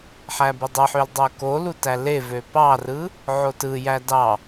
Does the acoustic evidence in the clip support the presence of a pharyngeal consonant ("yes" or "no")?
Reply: yes